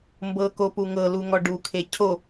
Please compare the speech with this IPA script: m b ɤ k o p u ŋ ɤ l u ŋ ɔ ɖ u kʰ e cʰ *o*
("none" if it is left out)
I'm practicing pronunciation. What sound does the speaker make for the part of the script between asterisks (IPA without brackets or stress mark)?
o